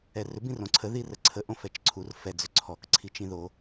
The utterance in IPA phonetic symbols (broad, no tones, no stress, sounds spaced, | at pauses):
ɛ r ʏ b ĩ r õ ǀʰ ə ð i r ə ǀʰ ə ʔ õ f ɛ t͡ʃ ǀʰ u r f ɛ d͡z ʏ ǀʰ ɔ k ǀʰ i t͡ʃ ĩ ð o